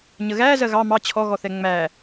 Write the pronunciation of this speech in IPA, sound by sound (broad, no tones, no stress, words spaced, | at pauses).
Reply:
ɲəɣæ zɜɣɑ mɑ t͡ɕʰɔɣɔθɛ ŋ͡mæ